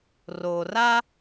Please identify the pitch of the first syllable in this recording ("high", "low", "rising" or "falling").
low